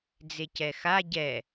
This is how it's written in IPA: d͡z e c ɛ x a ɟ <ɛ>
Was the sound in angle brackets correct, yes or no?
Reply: yes